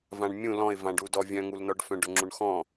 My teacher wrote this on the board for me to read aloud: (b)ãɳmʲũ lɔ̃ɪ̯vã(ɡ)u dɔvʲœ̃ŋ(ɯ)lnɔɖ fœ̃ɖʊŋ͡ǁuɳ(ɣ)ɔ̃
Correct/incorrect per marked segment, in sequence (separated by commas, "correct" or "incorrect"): incorrect, incorrect, incorrect, incorrect